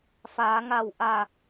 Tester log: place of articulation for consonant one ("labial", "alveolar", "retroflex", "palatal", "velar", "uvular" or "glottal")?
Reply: labial